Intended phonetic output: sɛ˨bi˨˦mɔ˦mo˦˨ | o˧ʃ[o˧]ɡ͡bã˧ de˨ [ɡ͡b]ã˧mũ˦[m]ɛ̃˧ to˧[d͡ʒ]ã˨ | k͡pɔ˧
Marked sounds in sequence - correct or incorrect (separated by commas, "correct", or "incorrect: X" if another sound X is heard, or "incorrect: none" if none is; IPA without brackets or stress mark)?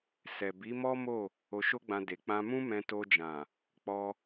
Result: incorrect: o˦, incorrect: k͡p, correct, correct